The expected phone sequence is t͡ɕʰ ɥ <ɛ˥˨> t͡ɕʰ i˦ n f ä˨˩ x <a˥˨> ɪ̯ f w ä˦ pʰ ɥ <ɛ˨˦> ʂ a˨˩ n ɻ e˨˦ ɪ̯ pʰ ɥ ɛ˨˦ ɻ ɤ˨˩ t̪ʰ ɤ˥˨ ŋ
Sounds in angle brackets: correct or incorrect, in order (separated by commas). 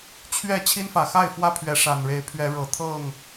correct, correct, correct